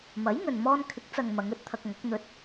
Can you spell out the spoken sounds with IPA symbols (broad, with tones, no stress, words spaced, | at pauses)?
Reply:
mɐ˨˥jŋɵ˨n mɔː˧nkʰɪ˨˥k̚t͡sɐ˨ŋ mɐ˨˧ŋɵ˧t̚t̪ʰɐ˧k̚ŋɐ˨˥k̚ n̪ɵ˨˥t̚